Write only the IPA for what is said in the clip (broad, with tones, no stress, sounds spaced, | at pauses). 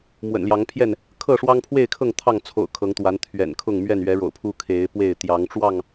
m w ə̰˨˩ n l j ɑ˨˦ ŋ pʰ j ɛ˥˨ n | kʰ ɤ˥˨ ʂ w ɑ˦ ŋ pʰ w e˥˨ ɪ̯ kʰ ɤ˥˨ ŋ t̪ʰ ɑ˥˨ ŋ t͡sʰ o̰˨˩ ʊ̯ kʰ ɤ˨˦ ŋ t̪ w a˨˦ n t̪ʰ ɥ ɛ̰˨˩ n kʰ ʊ˥˨ ŋ m ɥ ɛ˥˨ n ɥ ɛ˨˦ ɻ o̰˨˩ ʊ̯ pʰ u˦ kʰ e˨˦ ɪ̯ p w e˥˨ ɪ̯ t̪ j ɑ˨˦ ŋ ʈ͡ʂ w ɑ˥˨ ŋ